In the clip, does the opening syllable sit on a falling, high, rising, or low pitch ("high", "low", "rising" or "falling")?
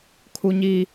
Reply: high